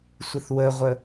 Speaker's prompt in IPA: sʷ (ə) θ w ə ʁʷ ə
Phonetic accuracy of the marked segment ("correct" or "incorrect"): correct